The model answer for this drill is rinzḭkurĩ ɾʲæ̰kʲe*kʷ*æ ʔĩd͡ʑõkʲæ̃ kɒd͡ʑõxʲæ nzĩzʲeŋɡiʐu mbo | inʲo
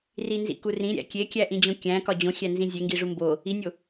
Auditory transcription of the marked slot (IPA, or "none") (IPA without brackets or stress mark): kʲ